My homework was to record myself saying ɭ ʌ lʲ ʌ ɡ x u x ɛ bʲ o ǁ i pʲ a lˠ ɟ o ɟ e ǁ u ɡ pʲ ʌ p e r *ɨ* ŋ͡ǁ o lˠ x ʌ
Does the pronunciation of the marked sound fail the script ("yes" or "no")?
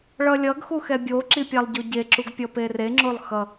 yes